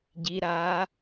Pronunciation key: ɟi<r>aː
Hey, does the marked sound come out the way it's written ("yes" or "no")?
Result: no